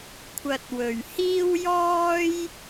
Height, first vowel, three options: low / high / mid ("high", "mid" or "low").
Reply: low